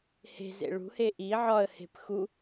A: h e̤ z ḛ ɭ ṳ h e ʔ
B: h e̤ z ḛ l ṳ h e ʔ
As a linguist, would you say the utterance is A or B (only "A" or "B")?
A